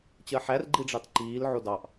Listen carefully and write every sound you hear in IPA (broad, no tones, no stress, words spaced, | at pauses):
t͡ɕɜħær ɡ͡ǃiɖ͡ʐɑtǃiːl ʕodɑʔ